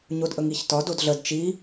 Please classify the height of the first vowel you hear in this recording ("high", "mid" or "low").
mid